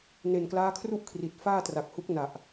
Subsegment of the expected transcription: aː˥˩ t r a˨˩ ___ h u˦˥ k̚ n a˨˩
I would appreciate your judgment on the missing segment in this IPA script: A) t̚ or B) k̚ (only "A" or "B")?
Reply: B